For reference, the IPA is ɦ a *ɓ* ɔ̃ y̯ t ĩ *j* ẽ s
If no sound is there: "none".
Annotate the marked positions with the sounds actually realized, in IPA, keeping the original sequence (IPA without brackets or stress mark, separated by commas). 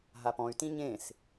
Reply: p, ɲ